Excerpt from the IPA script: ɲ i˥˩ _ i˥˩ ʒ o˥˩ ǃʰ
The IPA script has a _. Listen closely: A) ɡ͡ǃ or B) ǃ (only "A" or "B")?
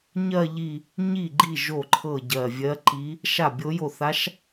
A